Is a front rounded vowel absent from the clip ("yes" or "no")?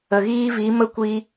yes